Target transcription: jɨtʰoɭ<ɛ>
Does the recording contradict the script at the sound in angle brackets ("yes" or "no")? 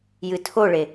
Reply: yes